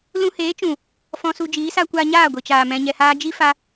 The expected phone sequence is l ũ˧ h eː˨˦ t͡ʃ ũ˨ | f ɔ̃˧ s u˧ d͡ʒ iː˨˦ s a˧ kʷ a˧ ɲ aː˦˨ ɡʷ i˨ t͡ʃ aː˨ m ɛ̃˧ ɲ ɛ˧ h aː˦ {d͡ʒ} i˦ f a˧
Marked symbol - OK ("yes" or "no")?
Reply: yes